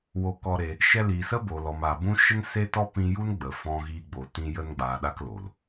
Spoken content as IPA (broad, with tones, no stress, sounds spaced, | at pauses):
w o˧ k ɔ˧ ɾ e˧ | ʃ ɛ˧ l iː˨ s ə˦ b o˨ l ɔ˨ m a˨ b ũ˦ ʃ ə˦ n s e˦ t ɔ˦ p ĩ˧ j u˦ n ɡ͡b ə˨ f ɔ̃˧ ɣ iː˧ ɡ͡b o˨ t ĩ˧ j ə˧ n ɡ͡b aː˨ ɗ a˦ k l o˨ l